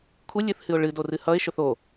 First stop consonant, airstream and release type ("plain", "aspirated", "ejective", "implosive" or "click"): aspirated